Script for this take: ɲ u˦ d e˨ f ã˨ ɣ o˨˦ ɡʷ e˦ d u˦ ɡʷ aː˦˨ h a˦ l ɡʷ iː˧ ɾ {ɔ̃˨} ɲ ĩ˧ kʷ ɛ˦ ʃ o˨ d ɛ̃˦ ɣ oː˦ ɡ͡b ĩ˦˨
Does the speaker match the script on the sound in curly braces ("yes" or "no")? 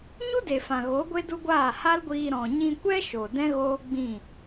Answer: yes